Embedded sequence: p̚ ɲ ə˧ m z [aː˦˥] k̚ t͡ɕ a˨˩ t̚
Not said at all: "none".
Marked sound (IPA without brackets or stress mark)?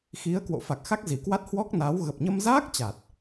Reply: aː˦˥